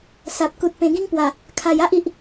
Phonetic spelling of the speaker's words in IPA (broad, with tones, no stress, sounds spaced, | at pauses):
s a˨ p̚ k u˨ t̚ p ẽ˨˩ ɡ ĩ˦ ŋ p w a˨˩ | kʰ a˨˩ j a˦ ʔ i˨ ʔ